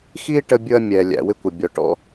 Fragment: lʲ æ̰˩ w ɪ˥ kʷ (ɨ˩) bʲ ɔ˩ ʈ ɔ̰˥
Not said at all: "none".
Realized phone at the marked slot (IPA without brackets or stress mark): ə˩